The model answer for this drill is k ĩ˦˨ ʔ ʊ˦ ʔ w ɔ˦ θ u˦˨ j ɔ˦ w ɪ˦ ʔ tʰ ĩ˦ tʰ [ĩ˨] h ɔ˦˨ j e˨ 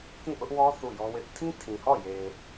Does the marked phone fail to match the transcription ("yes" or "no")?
no